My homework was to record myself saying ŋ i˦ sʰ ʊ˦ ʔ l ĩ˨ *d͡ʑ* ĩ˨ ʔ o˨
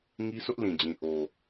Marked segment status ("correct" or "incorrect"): correct